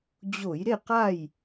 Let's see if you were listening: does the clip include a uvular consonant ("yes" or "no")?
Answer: yes